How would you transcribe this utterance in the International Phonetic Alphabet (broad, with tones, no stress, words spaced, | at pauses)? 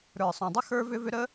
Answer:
ɾə˞˨sˤõ˨dˤə˦ xə˞˦vʏ˦vʏ˦ ɾə˦